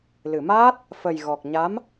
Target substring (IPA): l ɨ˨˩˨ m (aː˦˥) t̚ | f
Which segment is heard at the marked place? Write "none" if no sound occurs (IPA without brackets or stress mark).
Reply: aː˦˥